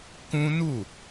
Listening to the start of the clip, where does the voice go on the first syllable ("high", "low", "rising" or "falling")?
high